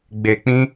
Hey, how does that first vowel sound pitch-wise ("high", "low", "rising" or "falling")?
low